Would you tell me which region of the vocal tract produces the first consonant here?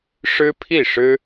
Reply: retroflex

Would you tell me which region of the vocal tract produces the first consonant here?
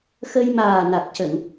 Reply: velum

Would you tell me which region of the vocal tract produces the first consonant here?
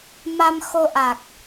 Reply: lips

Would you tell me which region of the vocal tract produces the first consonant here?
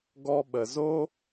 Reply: velum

